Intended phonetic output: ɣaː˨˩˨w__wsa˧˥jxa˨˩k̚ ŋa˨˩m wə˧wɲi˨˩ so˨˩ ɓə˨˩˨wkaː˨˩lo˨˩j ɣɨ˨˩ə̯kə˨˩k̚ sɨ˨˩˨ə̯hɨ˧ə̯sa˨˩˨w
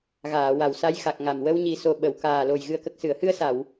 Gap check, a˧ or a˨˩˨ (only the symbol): a˨˩˨